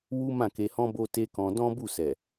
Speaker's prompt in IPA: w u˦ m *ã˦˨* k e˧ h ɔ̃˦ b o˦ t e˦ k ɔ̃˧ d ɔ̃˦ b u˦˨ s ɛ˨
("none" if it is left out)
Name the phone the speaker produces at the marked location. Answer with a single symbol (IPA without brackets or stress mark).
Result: ã˦˨